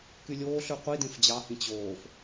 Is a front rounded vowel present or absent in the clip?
present